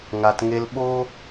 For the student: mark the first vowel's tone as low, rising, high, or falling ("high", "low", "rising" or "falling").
low